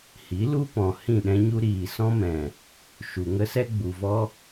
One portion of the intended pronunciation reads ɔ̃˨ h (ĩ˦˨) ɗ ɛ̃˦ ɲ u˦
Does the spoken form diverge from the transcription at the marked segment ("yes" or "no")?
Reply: no